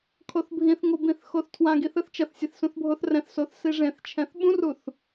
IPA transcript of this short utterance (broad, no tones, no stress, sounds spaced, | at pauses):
kʰ o θ bʱ ĩ θ ŋ o b ĩ θ x o θ tʰ w ã ɡ i θ ɯ θ t͡ʃ ʌ θ sʲ e θ s ũ θ bʱ o θ r ɛ̃ θ s o θ s i ʐ ẽ θ t͡ʃʰ ɛ̃ θ ɓ ũ r u θ